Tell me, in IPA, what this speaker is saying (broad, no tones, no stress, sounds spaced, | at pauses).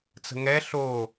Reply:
t͡s ə̤ ŋ ɛ ɬ o